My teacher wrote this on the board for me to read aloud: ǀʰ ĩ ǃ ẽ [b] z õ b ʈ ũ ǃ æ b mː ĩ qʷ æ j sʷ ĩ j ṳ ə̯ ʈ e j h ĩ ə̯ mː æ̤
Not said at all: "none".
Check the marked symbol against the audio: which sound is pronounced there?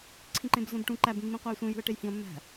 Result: b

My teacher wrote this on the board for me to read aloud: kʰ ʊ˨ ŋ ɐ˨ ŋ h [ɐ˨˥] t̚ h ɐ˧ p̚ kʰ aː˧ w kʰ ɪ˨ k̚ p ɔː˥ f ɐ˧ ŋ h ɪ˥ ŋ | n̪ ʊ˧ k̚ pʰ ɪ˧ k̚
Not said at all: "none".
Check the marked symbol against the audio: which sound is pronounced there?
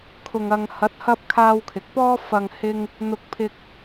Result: ɐ˨˥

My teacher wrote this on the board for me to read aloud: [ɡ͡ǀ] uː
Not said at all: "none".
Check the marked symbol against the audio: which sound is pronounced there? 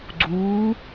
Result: ɡ͡ǀ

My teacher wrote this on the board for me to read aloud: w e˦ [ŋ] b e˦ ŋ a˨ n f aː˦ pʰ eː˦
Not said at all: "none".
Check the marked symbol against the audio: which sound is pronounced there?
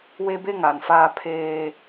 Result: none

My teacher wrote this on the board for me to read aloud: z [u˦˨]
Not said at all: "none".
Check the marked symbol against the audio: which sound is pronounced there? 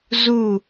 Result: u˦˨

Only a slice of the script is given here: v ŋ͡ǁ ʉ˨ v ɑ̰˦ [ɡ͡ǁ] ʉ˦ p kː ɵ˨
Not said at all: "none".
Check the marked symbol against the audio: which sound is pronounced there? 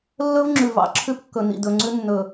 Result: ǁʰ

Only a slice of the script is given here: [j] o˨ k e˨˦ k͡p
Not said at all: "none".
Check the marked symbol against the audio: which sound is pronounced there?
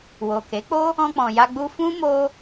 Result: w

